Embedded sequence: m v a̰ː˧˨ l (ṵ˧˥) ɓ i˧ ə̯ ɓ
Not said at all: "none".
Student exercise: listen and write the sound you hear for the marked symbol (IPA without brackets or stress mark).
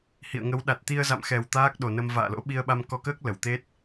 o̰˧˥